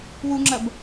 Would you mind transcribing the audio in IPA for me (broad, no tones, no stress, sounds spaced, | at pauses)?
w u ŋ͡ǁ ɐ b